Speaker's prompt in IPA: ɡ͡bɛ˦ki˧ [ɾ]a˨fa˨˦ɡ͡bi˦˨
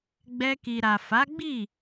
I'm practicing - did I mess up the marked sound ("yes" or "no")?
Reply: no